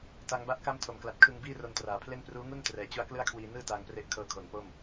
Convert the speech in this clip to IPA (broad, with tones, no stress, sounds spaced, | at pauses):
t a˦˥ ŋ b a˥˩ ʔ k a˥˩ m tʰ o˨˩ m k l a˨˩ t̚ kʰ ɯ˧ ŋ b iː˥˩ r o˧ n t r aː˨˩ pʰ l e˥˩ n p r uː˦˥ ŋ u˥˩ n t r ɛː˨˩ t͡ɕ u˧ a̯ k l ɯ˥˩ a̯ kʰ w iː˧ n ɯː˥˩ t aː˧ ŋ p r e˦˥ ʔ kʰ ɤː˧ kʰ o˩˦ n p o˥˩ m